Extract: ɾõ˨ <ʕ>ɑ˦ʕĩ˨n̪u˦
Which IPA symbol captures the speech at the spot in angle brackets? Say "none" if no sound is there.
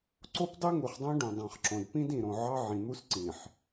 ʕ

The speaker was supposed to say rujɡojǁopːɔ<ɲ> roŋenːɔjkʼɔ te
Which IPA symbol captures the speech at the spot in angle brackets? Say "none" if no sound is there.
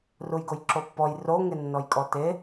j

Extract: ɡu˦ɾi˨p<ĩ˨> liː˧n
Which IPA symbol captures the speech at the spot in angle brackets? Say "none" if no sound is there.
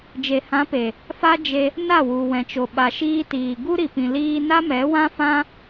ĩ˨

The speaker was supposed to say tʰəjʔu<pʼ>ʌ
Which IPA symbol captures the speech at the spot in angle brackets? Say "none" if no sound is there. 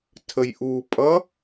pʼ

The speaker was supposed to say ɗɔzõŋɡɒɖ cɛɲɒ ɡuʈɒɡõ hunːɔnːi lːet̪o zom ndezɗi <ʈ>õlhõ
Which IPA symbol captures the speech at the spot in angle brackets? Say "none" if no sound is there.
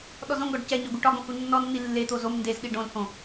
ɖ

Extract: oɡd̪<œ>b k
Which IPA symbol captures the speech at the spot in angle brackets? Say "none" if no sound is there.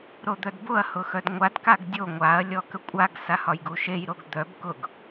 œ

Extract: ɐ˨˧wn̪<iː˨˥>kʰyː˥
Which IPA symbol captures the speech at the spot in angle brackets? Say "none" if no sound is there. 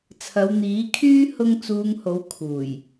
iː˨˥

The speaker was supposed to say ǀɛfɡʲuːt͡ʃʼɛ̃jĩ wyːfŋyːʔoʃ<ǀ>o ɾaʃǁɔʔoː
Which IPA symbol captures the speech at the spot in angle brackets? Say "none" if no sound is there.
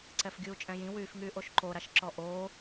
ǃ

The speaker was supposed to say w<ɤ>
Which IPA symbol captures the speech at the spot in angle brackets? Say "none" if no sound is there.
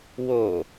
o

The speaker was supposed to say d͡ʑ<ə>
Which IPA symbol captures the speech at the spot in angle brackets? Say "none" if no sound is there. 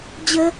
ə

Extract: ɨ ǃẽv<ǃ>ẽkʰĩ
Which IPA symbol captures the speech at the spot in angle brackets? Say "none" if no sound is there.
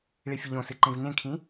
n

